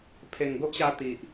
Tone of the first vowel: low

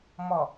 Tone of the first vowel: low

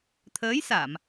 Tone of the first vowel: rising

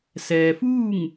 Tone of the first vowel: low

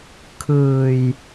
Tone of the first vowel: low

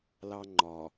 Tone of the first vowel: high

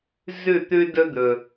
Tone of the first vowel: falling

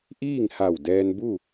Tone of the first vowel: falling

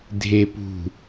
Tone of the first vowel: low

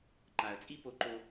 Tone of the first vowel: low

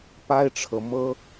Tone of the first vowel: high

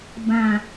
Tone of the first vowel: low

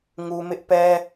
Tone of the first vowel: low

